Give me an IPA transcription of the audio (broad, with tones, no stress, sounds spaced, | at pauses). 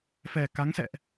f ɛ˨˩ k a˨˦ ŋ s ɛ̰˧˨ ʔ